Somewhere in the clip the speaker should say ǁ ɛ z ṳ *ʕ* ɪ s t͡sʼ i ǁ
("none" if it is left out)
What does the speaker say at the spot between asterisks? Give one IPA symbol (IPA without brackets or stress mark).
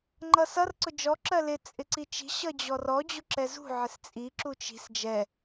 ʕ